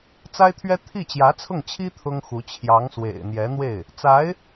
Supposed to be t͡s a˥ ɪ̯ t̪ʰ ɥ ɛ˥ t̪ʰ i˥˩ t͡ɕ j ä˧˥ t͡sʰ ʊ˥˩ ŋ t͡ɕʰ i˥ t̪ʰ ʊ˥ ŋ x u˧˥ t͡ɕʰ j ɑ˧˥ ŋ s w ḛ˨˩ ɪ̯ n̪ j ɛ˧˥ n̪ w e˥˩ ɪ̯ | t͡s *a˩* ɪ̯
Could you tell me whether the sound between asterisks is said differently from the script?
yes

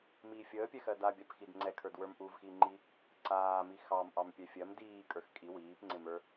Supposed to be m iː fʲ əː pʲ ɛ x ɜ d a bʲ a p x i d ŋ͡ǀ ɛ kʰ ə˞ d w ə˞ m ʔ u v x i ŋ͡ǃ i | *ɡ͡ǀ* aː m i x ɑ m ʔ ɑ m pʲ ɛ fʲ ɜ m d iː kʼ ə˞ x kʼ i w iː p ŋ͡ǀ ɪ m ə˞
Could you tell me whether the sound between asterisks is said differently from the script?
yes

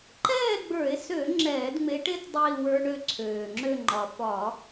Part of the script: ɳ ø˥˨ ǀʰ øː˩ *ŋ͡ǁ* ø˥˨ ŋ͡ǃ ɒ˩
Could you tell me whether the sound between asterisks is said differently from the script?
no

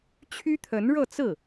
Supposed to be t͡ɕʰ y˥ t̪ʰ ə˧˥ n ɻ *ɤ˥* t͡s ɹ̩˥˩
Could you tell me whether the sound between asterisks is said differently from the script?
yes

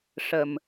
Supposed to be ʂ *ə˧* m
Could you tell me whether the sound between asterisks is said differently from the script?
yes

